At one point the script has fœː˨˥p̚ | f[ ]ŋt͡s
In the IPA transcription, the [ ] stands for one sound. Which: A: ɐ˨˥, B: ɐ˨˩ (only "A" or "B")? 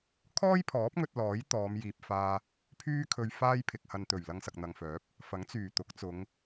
A